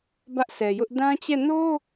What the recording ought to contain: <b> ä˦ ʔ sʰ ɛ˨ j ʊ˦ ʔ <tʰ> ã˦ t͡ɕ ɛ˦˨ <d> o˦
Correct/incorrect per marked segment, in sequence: correct, incorrect, incorrect

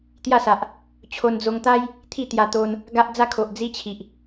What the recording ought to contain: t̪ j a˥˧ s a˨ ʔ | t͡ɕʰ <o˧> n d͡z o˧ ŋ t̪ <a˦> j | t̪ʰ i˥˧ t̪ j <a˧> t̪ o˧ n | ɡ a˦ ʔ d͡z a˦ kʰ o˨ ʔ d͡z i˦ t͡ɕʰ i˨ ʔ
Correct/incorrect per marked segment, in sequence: correct, correct, correct

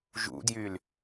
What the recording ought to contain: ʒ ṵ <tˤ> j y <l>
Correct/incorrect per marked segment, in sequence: incorrect, correct

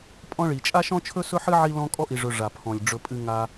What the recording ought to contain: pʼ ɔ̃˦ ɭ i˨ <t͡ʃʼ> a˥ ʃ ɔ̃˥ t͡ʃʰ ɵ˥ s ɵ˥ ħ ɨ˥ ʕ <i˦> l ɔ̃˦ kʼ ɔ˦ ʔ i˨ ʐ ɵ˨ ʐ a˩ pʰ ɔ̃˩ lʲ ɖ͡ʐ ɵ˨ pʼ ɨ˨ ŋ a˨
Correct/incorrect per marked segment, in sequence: correct, correct

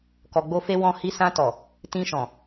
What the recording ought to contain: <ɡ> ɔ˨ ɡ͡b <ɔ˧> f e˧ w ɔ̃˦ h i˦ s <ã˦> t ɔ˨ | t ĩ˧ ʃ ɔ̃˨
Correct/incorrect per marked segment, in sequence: incorrect, incorrect, incorrect

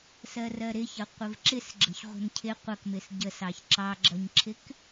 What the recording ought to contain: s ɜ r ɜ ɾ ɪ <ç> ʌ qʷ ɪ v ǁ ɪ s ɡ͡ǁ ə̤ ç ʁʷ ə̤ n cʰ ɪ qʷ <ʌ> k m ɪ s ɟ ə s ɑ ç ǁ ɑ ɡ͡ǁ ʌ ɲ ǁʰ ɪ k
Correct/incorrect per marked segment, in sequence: correct, correct

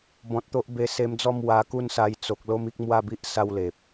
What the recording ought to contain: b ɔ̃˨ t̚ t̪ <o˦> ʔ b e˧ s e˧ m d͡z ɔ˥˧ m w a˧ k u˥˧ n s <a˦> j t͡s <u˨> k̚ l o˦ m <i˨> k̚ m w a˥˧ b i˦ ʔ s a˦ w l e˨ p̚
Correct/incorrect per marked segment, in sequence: correct, incorrect, incorrect, incorrect

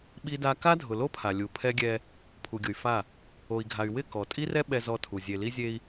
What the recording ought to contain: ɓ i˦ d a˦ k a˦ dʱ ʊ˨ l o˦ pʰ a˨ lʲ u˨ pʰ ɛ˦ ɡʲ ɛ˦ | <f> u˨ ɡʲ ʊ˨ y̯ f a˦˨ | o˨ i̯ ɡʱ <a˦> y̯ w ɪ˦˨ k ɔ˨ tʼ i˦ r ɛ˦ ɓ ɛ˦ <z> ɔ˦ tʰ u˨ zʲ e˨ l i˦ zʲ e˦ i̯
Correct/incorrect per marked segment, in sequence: incorrect, incorrect, correct

